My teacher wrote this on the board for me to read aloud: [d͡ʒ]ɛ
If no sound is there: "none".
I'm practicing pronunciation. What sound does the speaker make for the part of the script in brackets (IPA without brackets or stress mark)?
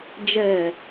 d͡ʒ